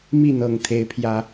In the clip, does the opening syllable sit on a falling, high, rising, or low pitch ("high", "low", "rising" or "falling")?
falling